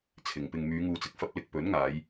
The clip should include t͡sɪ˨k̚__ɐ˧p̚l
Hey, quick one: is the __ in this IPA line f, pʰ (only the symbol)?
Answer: f